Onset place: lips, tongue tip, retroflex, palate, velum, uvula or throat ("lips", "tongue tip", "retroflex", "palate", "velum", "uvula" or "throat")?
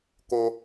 velum